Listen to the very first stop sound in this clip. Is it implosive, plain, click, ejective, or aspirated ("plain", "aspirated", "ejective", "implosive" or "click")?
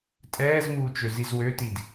ejective